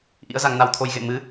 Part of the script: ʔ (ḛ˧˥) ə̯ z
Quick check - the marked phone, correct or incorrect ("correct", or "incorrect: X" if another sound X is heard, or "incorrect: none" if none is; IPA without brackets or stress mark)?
incorrect: ḭ˧˥